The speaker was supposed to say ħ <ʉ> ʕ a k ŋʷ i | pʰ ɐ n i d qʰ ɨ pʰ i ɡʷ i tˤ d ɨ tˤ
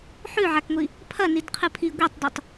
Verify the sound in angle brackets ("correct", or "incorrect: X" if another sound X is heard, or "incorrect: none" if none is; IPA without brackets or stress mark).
correct